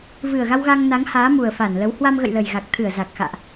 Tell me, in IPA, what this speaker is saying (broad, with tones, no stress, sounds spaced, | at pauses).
v ɨ˨˩ ə̯ ɣ a˧ w ɣ a˧ ŋ n a˨˦ ŋ h aː˨˦ m u˨˩ ə̯ f a˧˩ n l ə˨˦ w h w a˧ m ɣ ə̰˧˨ j l ə˨˩ j ɣ a˨˩ k̚ t̪ʰ ɨ˧˩ ə̯ z a˨˩ k̚ x a̰ː˧˨ ʔ